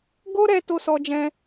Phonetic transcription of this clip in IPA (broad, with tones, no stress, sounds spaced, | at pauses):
ɡ o˦ ɾ ɛ˧ t o˦ s ɔ˧ d͡ʒ ɛ̃˧